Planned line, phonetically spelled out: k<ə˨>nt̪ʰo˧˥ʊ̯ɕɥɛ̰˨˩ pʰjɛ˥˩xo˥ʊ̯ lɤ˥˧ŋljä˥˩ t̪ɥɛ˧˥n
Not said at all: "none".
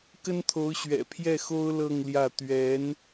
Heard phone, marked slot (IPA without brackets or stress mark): ə˥